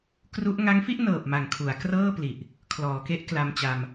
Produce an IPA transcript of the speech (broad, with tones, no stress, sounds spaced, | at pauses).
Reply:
k r u˦˥ ʔ ŋ a˦˥ ŋ f i˥˩ ʔ n ɤː˨˩ p̚ m a˨˩ ŋ kʰ u˩˦ a̯ k r ɤː˥˩ p l i˨˩ ʔ | kʰ l ɔː˩˦ k e˦˥ ʔ k l a˧ m t͡ɕ a˧ m